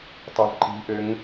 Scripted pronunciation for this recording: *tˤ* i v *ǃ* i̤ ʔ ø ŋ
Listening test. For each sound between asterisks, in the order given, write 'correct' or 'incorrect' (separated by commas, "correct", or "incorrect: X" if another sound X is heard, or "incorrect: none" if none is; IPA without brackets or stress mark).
correct, correct